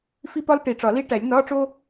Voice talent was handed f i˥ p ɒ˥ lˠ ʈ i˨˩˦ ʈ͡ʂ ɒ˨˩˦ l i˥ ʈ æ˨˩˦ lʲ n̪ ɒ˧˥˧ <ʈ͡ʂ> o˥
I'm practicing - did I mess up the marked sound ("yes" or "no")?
no